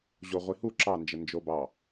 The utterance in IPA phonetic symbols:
ʑoʁʷihu ǁɑnd͡ʒə nd͡ʒobɑ

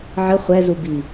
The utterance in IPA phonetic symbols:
ʕə χʷɛ zubi

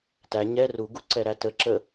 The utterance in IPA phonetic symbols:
tæ ɲɛ ruɡuǀɛɾæ tə ǁə

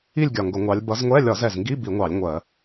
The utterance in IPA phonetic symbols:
i˦˨lʲɡʲɒ˨˩ ŋɡʊ˧˩˧ŋʷɑ˨˦lʲ bʌ˨˦zŋʷɛ˧˥˧ lʲɒ˧˩˧zɛ˨˩zŋɡi˧˥˧ bi˧˩˧ŋʷɑ˧˩˧lʲ ŋʷɜ˧˩˧

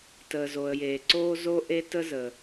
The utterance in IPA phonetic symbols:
təː˩zo˩ə̯jeː˩ǀoː˥ zo˥ʔe˥tə˥zə˩

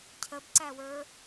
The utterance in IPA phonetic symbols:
cʰəbǀæwə˞

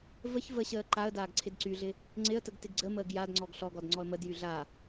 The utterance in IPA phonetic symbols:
vəç vəɕəː ǃaə̯ daːɡǀʰɪdǀyɮɪ | ŋ͡ǀɪə̯təɡ tɪɡɡ͡ǀəməːɡ jadŋ͡ǀɔɡ ɬɔɡɔd ŋ͡ǀɔə̯mədjy ɮa

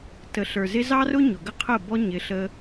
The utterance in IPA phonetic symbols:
tə˨ɬə˞˨zɪ˧ zɑ˦rʊ˦ ɲʊ˨ɡə˦qʰə˦˨bɔ˦ ɲɪ˧ ɬə˧

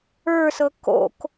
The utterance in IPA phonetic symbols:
ə˞sɤ ko̰k

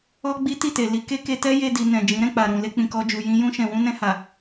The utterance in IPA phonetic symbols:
ɔ˦ɡ͡bi˦ ti˦˨te˨li˨˦ ke˦ke˧tɛ˦ je˧di˨ nɛ̃˨d͡ʒĩ˨˦ɾɛ̃˧ k͡pa˨ɾũ˨ le˧k͡pĩ˨kɔ˧d͡ʒu˨ jĩ˧ jũ˧ʃɛ̃˨wũ˧ nɛ̃˧ha˨

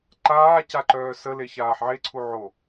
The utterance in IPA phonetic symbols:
ǃaː caǃœːsə leçaːħʕeǀʰu ʕo

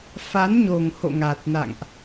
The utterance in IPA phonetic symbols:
fa˨˦nɲo˨˩ŋho̰˧˨ ŋa˨˩t̚na̰˧˨ŋʔ

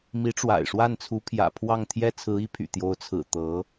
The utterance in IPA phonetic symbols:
mi˧˥ʈ͡ʂwa̰˨˩ɪ̯ʂwa˥˩nt͡sʰu˧˥ pʰjä̰˨˩ pʰwɑ˥˩ŋ t̪ʰjɛ˥t͡sʰɹ̩˧˥i˧˥pʰy̰˨˩ t̪jo˧˥ʊ̯t͡sʰɹ̩˨˩ t̪ɤ˧˥

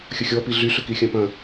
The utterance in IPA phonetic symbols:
xʲəxʲɔpi ɮyɬʏ kixʲɐ̃pɐ̃

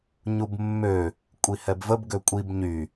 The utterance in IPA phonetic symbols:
ɲubmːø | kʷʼihɛbvəb ɡøkʷʼib ɲy

